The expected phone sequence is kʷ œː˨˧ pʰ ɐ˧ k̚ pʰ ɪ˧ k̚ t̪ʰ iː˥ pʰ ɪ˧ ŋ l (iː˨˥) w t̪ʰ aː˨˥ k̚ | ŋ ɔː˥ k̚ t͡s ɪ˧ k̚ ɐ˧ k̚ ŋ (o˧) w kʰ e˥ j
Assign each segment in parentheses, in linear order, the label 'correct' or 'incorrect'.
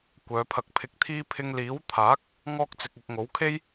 correct, incorrect

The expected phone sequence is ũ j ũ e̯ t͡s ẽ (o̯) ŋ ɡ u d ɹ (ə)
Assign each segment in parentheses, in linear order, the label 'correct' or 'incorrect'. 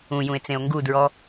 correct, incorrect

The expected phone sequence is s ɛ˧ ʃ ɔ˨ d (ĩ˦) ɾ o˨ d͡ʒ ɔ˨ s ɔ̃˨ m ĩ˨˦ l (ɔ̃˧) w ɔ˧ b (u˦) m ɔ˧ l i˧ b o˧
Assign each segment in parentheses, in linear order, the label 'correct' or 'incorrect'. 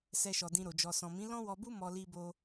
incorrect, incorrect, correct

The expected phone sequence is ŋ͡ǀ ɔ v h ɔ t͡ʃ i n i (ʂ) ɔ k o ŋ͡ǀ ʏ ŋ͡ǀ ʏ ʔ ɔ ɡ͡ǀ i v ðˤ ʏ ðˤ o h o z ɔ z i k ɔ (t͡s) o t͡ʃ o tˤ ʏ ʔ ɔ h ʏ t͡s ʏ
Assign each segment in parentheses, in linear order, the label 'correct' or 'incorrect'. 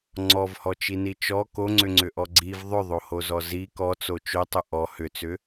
incorrect, correct

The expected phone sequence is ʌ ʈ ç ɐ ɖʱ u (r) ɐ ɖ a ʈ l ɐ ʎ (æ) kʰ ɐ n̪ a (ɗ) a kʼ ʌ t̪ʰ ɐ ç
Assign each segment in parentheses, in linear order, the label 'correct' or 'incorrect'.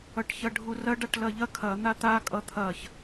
correct, incorrect, incorrect

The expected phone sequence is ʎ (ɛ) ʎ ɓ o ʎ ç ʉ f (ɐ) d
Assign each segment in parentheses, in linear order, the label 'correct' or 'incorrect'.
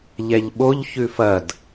correct, correct

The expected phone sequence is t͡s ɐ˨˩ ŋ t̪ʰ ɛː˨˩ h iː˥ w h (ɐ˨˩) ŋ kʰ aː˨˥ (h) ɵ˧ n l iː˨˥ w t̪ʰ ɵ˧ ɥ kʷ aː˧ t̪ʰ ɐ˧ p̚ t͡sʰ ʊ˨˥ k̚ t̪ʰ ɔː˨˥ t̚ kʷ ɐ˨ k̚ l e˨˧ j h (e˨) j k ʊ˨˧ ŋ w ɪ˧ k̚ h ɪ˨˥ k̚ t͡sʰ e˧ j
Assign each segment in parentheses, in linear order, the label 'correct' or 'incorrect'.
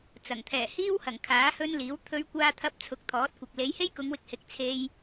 correct, correct, incorrect

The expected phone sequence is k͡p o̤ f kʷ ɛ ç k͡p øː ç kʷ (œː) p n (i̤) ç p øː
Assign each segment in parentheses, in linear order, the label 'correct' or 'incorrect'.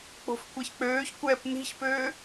incorrect, correct

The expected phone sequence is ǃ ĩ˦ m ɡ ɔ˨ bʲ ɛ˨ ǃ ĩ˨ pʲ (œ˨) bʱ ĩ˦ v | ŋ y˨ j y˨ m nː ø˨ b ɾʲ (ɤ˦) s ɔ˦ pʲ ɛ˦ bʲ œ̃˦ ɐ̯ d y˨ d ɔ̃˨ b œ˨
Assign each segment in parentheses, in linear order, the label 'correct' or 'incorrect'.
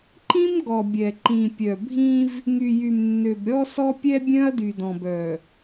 correct, incorrect

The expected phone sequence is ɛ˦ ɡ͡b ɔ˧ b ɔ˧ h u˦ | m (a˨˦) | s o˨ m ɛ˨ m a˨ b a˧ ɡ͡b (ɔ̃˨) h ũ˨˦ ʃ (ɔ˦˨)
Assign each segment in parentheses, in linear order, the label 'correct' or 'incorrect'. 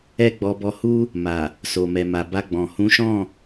incorrect, correct, incorrect

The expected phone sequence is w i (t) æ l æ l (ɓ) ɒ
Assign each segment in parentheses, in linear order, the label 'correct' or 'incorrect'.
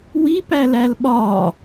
incorrect, correct

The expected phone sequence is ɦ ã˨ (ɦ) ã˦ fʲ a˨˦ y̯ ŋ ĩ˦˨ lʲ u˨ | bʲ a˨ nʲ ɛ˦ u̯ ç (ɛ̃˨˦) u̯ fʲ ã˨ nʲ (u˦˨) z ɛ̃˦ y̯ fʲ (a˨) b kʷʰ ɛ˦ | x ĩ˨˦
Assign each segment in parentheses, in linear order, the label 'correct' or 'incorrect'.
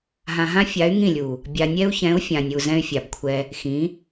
correct, correct, incorrect, correct

